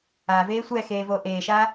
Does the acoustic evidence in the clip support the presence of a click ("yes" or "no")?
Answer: no